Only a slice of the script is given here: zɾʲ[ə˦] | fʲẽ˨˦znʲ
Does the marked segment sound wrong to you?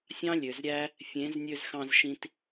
yes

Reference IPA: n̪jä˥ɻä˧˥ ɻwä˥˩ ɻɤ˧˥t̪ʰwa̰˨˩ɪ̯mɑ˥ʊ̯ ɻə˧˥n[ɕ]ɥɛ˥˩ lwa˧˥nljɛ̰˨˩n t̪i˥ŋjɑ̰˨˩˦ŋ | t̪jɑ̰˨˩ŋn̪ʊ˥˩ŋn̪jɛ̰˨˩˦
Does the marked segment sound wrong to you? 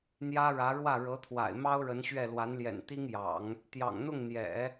no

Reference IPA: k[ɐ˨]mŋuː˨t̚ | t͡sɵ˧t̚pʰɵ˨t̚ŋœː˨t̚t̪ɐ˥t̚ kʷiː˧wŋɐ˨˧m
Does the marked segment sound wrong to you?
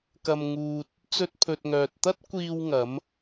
no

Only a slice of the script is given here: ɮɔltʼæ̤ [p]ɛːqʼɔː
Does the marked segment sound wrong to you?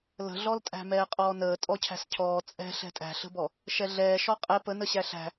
yes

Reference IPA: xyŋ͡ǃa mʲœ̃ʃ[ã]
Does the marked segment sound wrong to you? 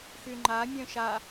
yes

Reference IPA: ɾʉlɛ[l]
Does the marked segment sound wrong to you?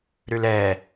yes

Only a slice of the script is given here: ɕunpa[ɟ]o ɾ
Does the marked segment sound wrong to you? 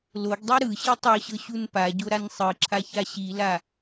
no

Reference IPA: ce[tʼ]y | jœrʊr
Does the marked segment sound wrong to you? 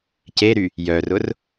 yes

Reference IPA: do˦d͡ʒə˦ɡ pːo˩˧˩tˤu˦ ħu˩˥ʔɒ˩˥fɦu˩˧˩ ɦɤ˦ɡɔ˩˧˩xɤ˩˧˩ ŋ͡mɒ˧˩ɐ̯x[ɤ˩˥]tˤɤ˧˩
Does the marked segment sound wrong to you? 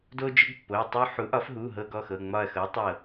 no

